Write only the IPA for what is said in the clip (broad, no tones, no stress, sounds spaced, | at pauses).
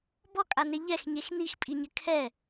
b ɔ kʼ a n e ʎ ɛ x ɲ e x n i x pʼ i ɲ ɘ kʰ ɛ